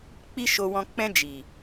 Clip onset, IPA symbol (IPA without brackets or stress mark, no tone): k͡p